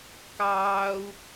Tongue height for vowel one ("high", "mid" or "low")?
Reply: low